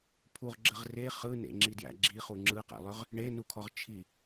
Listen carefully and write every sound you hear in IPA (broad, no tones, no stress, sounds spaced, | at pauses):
pʰ u ʁ ɡ͡ǁ ə ʁ r e χ ɯ n ḛ ŋ͡ǁ i d j æ̰ ɡ͡ǁ i χ u ŋ͡ǁ ɯ q æ̰ lˠ ʏ ʁ | ɳ e n u kʰ ɔ ʁ t͡ʃʰ i